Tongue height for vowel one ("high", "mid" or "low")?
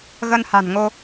mid